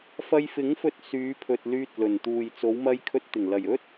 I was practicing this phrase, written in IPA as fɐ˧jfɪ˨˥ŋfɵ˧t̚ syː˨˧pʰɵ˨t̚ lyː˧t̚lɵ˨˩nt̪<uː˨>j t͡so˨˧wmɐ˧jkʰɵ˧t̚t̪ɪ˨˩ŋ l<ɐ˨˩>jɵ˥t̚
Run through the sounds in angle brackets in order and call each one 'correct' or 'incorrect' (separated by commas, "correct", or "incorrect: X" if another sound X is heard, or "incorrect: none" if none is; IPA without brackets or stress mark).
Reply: correct, correct